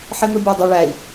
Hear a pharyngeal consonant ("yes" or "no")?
yes